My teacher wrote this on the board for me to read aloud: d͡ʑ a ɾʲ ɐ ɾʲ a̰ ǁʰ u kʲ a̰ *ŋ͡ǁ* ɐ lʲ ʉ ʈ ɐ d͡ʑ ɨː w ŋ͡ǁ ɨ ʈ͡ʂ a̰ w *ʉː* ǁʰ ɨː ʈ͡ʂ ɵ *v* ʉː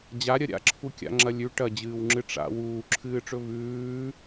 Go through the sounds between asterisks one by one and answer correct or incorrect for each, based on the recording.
correct, incorrect, correct

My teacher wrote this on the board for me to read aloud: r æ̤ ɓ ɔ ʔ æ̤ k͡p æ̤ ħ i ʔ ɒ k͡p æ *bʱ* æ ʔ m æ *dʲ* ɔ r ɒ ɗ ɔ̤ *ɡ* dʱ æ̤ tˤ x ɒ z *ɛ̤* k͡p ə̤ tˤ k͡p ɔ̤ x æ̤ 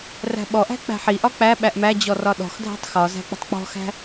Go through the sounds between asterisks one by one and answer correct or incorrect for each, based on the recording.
incorrect, incorrect, incorrect, incorrect

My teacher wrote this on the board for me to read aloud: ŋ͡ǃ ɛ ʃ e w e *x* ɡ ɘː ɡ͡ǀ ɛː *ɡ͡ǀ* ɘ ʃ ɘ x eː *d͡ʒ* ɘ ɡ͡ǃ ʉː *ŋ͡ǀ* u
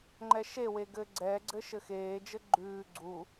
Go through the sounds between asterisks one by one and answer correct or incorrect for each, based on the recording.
incorrect, correct, correct, incorrect

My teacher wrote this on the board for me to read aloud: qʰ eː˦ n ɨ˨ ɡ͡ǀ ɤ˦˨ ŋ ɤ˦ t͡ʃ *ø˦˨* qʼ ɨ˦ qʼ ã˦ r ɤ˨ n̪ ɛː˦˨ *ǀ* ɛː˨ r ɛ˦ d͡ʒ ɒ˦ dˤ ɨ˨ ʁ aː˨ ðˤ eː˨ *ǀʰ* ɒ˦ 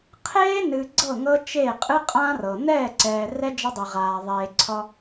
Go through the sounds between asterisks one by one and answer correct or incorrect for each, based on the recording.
incorrect, correct, correct

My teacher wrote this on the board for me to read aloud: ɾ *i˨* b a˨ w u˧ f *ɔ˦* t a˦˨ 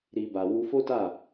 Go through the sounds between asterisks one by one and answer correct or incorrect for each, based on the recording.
correct, incorrect

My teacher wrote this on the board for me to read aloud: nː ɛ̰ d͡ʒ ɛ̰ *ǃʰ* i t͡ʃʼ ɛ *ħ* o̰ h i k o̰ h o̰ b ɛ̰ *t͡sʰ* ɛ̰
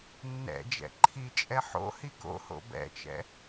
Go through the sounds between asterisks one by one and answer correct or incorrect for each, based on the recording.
correct, correct, incorrect

